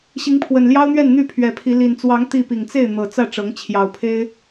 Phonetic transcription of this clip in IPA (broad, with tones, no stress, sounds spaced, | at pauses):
ɕ i˨˦ ŋ pʰ w ə˨˩ n l j ɑ˦ ʊ̯ n̪ ɥ ɛ˥˨ n n̪ y˥˨ pʰ ɥ ɛ˨˩ pʰ i˨˦ l i˨˩ n t͡s w ɑ˨˦ ŋ t̪ i˥˨ p i˨˩ ŋ t͡s e˥˨ ɪ̯ n̪ ɤ˨˩ t͡s ä˥˨ ʈ͡ʂ ɤ˨˦ ŋ t͡ɕʰ j ɑ˨˩ ʊ̯ pʰ e˦ ɪ̯